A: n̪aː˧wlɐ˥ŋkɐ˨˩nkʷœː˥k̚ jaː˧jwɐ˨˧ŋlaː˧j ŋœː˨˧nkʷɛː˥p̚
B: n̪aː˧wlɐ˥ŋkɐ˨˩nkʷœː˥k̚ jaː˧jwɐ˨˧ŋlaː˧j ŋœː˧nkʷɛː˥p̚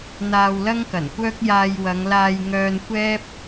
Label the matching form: B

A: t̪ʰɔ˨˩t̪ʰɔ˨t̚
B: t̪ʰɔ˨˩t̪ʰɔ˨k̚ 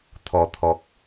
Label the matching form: B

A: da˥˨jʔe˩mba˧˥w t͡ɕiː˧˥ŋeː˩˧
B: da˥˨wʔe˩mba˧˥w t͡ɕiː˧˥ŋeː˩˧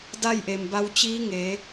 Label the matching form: A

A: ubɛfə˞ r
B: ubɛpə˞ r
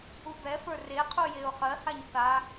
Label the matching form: A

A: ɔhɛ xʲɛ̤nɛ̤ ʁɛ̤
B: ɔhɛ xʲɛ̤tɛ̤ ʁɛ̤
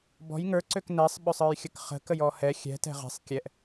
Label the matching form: B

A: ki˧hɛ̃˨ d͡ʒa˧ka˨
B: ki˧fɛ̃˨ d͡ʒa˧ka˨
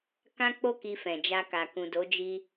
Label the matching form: B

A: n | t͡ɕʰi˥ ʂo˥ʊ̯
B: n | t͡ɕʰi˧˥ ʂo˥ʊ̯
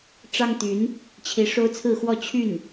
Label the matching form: B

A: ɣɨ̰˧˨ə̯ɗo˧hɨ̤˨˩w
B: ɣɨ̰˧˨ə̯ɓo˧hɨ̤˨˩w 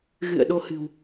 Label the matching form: A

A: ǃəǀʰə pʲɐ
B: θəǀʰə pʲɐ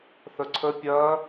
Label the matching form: B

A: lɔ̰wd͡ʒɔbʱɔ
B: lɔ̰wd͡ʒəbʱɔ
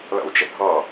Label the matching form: B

